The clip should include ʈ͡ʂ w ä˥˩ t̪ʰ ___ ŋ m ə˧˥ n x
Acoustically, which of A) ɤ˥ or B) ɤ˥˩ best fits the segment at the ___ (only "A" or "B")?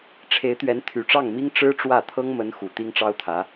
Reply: A